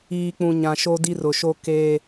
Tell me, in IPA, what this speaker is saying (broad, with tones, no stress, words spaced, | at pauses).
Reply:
iː˨k͡pũ˨ ɲã˨ʃo˦di˦ rʊ˨ʃo˦ keː˦